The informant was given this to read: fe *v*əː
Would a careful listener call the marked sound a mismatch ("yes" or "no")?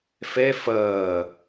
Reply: yes